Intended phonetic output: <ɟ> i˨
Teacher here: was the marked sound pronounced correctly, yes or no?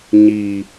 no